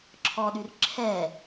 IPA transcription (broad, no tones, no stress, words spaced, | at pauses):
ǁʰɔɗyr ǁʰɛ